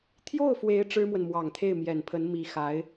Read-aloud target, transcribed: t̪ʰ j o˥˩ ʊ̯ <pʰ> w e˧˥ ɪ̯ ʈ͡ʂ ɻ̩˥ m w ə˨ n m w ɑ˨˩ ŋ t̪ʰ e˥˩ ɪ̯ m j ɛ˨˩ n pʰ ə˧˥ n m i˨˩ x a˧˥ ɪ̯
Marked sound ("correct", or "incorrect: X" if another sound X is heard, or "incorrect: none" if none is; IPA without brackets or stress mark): incorrect: f